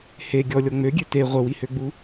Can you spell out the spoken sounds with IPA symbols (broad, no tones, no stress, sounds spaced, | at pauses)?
h e ɡʲ ɔ lʲ ɔ ŋ͡m ø ɡʲ ø t e ʁʷ ə w i h ø ɡ͡b u